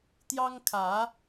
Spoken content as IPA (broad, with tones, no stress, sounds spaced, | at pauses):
t̪ j ɑ˦ ŋ kʰ ä˨˦